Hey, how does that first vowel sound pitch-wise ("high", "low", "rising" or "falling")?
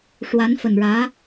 rising